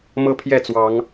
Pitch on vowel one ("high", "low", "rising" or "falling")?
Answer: high